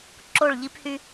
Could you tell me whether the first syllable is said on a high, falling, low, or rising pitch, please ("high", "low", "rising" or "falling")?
falling